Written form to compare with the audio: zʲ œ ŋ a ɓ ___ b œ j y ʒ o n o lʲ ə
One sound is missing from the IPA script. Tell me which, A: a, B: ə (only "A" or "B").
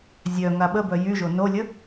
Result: B